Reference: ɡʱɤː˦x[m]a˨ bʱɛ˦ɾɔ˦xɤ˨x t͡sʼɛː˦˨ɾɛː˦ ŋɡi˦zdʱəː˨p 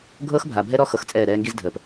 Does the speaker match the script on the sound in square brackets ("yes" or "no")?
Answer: no